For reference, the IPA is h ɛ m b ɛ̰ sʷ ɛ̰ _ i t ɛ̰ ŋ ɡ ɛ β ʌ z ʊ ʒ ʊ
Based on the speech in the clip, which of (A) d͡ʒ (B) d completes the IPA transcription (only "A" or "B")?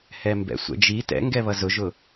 A